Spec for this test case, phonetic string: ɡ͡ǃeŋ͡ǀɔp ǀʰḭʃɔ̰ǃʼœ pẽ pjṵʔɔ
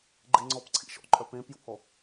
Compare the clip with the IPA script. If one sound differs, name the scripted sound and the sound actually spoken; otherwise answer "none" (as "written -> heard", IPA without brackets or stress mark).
none